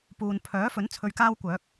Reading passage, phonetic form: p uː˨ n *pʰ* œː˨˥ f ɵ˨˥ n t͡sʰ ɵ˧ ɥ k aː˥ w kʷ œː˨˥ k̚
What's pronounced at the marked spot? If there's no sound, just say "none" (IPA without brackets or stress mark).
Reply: pʰ